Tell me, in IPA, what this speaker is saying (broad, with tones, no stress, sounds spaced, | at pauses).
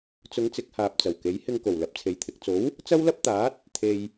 t͡s ʊ˨˧ ŋ t͡s ɪ˨˥ k̚ h aː˨ p̚ t͡s ɐ˨˩ w k e˨˥ j h ɪ˧ ŋ k o˨˩ w l ɐ˨ p̚ t͡sʰ e˨˩ j t̪ʰ ɪ˨ k̚ t͡s o˨˥ w | t͡s ɐ˥ w l ɐ˥ p̚ t̪ aː˨˥ t̚ | t̪ʰ e˨ j